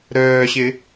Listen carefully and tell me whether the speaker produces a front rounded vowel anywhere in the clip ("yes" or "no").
yes